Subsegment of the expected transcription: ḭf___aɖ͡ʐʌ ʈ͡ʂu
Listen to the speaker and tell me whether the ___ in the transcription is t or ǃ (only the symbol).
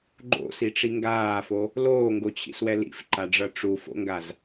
ǃ